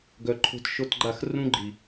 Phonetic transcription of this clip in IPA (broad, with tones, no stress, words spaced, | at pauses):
ɡœ˨ǃʰo̤˧t ʃo˧tɡ͡ǃa˦˨xrũ˦ ɡ͡ǃi˨